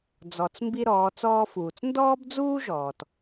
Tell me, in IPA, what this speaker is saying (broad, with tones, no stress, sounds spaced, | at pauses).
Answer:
d͡z ɔ˩ t͡s m b i˧ ɾ ɔː˩˧ t͡s ɔː˧ f uː˩ t͡s n d ɔː˥ b d͡z uː˥ ʒ ɔː˩ t